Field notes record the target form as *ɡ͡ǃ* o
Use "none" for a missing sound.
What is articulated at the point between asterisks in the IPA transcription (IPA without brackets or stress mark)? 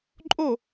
ǃʼ